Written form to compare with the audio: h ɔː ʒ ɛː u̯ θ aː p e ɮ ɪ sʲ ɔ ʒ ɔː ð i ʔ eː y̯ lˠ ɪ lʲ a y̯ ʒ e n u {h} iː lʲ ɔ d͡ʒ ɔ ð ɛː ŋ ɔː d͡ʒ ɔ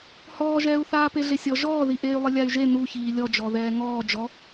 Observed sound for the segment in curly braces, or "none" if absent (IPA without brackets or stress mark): ç